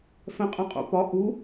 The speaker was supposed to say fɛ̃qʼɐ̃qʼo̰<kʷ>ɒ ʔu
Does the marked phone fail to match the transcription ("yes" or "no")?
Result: yes